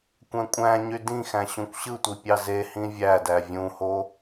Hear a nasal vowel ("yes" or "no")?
yes